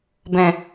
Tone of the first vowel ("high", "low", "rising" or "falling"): low